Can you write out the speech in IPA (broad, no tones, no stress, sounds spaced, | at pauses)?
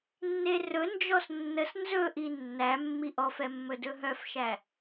nː e r ɵ n d͡ʒ ɔ s nː ə s n z ɵ ʔ i nː æ mː i ʔ ɔ f ɛ mː ɵ d ɵ ɦ œ f ʃ æ